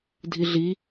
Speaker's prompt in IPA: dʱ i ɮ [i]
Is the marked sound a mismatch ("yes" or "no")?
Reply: no